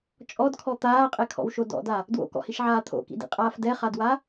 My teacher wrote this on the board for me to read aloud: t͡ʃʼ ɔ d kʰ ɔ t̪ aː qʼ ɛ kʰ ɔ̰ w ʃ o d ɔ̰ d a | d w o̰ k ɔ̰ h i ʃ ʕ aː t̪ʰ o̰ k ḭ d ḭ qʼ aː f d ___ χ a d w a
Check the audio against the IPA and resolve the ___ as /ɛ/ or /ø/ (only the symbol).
ɛ